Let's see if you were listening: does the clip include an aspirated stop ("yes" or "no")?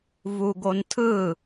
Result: yes